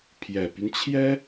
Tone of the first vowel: low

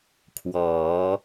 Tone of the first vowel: rising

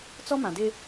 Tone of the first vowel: high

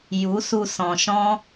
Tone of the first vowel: rising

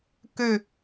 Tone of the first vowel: falling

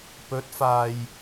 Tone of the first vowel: rising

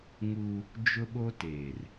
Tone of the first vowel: high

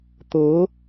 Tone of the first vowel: rising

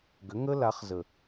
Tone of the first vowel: rising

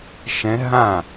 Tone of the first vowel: rising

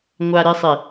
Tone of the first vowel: low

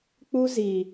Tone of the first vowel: high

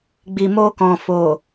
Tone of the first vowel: low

